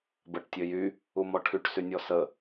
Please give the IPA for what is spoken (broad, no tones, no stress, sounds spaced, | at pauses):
b ə ʈ tʲ ø j y | u m ɔ ʈʰ y ʈ s y nʲ ɔ s ə